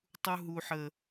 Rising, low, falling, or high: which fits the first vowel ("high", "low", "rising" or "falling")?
high